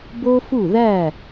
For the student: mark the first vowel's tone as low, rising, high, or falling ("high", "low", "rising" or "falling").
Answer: high